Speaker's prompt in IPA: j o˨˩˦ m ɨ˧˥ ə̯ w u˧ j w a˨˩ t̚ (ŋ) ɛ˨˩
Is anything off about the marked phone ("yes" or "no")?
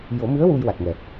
no